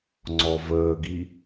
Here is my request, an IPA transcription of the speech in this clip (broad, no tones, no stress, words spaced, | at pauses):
ŋ͡ǀɔvəːɡi